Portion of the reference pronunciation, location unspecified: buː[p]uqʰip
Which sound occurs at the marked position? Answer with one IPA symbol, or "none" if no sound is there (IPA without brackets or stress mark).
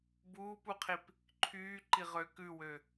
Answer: p